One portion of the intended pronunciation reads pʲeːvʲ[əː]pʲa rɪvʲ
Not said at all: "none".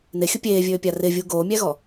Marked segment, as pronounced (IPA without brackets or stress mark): øː